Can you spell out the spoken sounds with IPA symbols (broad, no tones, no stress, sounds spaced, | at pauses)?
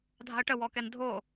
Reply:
dʱ a̤ ə̯ ʈ ə w ɔ k ɛ n dʱ o